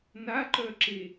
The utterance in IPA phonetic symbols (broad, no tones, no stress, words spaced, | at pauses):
naǃœǁe